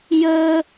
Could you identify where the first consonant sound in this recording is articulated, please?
palatal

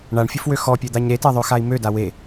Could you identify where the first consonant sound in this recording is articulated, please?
retroflex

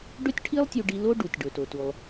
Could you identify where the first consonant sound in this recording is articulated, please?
retroflex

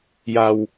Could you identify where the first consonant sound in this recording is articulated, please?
palatal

